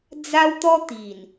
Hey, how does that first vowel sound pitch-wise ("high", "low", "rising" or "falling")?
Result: high